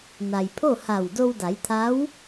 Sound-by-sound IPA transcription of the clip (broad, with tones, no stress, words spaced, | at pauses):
na˩jpʰo˥˨ha˧˩w do˧wda˩˧jt̪ʰa˧˥w